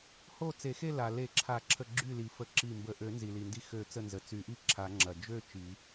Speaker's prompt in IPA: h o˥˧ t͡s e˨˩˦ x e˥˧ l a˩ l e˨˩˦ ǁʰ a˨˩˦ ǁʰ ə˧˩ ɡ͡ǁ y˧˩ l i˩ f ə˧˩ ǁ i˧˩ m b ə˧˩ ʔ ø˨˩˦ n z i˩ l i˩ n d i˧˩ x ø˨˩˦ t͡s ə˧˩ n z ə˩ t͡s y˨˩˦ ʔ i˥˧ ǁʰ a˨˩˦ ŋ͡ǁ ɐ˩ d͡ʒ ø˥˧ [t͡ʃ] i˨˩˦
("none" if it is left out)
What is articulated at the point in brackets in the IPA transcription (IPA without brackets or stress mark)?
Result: t͡ʃ